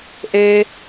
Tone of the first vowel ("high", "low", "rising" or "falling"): high